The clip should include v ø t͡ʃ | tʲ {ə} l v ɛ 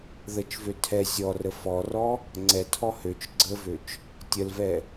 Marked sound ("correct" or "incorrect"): correct